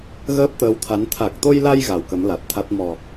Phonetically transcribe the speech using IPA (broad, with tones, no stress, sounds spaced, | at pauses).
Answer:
ɣ əː˦˥ p̚ t̪ əː˨˦ w t̪ʰ a˨˦ n t̪ʰ a˨˩ k̚ t̪ o˧ j l a˧ j ɣ a˨˩ w k ə˨˦ m l a˨˩ t̚ t̪ʰ a˦˥ t̚ m ɔ˨˩